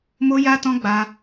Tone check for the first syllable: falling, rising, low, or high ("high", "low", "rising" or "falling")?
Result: high